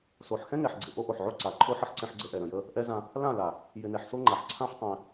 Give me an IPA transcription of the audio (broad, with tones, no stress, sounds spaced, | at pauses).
s o˨ ħ x ɛ̃˦ ŋ ɛ˨ ħ ɡ͡ǀ ɪ˨ ʔ o˦ ʔ o˨ ħ ʕ o˦ ǀ a˨ ǃʰ o˦ ħ ə˦ ħ ǀ ɛ̃˦ ħ ɡ͡ǀ ə˦ ʔ ɛ˨ ɾ ə̃˨ j ə˦ | ʔ ɛ˦ z ã˦ | l ã˦˨ l a˨ | j ɪ˨ n ɛ˨ ħ s o˦ ŋ͡ǃ a˨ ħ ǀʰ ã˦ ħ tˤ ɛ̃˦